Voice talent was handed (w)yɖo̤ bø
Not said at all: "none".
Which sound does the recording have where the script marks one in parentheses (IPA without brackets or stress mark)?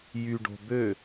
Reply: j